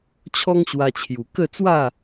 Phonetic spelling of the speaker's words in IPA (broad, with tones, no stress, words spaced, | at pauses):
t͡ɕʰɔ˦ŋɕwa˧t͡ɕʰju˨˩ kə˥˧t͡swa˥˧